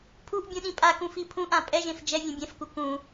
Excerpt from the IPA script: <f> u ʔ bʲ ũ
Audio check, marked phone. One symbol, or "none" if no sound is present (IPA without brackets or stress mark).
pʰ